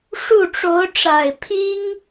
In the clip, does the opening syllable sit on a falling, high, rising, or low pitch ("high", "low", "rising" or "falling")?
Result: falling